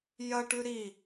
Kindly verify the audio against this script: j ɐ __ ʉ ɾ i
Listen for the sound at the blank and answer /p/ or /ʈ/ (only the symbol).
ʈ